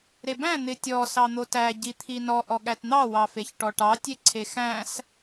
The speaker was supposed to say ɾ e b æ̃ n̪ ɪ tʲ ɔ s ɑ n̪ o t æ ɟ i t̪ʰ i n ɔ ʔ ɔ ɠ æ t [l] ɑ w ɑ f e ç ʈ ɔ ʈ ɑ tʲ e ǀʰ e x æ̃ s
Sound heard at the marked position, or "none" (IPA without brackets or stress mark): n̪